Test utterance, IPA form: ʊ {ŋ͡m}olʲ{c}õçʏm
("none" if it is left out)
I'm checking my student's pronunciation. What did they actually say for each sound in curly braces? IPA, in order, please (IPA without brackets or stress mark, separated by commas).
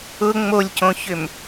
ŋ͡m, c